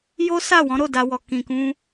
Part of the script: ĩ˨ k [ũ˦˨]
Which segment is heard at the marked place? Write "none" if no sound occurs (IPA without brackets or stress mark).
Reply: ũ˧